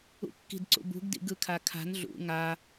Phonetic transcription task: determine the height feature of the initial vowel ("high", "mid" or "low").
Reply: high